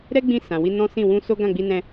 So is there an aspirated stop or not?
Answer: no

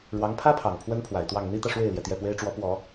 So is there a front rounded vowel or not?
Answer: no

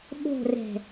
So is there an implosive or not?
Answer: yes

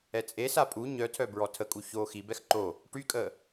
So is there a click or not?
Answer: yes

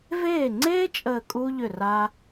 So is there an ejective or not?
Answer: yes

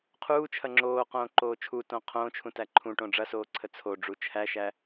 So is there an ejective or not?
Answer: no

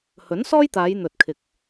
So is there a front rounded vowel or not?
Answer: no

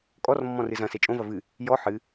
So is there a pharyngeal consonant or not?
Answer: yes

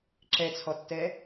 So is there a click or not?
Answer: yes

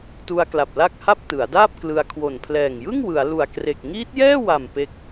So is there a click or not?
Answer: no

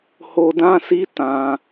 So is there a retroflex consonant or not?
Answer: no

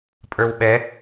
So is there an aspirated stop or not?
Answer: no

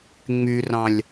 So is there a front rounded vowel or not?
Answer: yes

